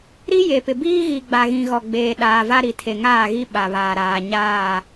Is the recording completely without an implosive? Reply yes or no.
no